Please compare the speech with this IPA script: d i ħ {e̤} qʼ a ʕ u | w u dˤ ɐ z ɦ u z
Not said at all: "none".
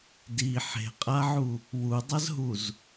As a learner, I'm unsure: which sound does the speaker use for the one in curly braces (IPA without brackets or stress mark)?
e̤